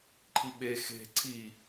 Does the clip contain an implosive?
yes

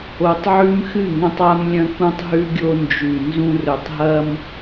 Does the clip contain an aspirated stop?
no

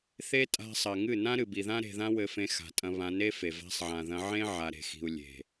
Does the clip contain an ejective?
yes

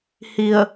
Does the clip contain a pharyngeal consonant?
no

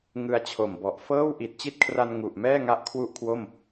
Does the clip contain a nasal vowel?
no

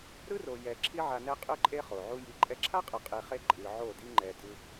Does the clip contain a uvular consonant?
yes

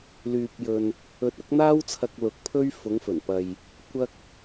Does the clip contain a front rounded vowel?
yes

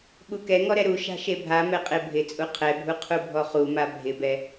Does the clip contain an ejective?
yes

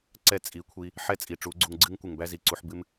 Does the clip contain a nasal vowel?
no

